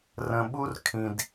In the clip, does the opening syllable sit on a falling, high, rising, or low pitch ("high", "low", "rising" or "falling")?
low